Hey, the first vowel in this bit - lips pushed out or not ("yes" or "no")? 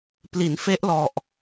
no